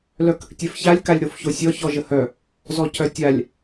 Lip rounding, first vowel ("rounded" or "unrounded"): rounded